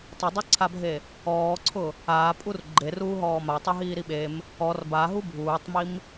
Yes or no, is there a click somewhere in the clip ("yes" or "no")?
yes